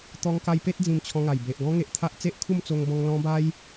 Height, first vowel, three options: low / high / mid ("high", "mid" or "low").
mid